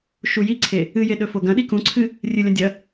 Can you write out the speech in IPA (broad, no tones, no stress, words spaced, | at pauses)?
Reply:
ʃujiǀʰe | ɨje ɗɵfoɡɐ̃ɗi kũǀʰɨ | rʲɨlʲɐ̃ dʲɐ